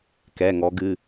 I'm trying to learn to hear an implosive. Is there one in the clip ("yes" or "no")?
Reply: no